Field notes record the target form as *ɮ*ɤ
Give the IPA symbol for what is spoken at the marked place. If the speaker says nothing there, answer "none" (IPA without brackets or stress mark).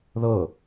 ð